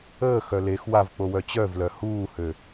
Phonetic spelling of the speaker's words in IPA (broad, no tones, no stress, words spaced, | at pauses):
əːxœ lex wavk͡powœ t͡ɕœvlœ huːhø